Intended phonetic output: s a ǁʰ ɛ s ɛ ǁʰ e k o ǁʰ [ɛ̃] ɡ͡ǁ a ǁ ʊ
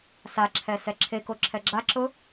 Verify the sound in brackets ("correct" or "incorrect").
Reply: incorrect